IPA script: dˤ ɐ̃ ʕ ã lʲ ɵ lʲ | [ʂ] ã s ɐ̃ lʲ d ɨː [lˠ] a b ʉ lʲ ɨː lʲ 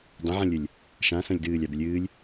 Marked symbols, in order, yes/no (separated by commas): no, no